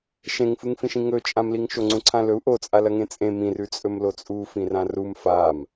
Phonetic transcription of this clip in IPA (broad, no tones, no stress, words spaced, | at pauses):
ʃẽŋfɨŋfĩʃĩ ŋɵt͡ʃʼãmliŋ ʃoŋ͡ǀũǀʰãlɵu̯ ʔot͡sʼalɐ ŋẽt͡sʼẽ mĩrʉ t͡sʼɵmlot͡sʼu fĩrãrum fam